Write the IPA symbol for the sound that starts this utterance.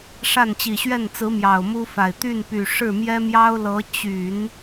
ʂ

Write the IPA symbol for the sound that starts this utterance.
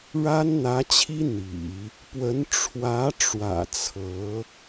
ɻ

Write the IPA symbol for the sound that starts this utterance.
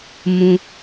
m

